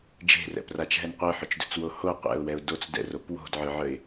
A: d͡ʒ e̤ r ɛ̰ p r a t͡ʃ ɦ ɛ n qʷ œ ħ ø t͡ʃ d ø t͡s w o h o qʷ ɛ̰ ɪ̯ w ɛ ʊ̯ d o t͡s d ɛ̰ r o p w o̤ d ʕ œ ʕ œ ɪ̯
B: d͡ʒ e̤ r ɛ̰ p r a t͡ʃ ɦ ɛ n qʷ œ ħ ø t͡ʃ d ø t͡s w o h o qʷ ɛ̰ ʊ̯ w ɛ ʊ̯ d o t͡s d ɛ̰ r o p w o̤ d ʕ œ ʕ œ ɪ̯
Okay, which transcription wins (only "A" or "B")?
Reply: B